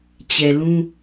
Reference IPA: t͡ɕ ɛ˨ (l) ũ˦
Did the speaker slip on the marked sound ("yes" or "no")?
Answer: no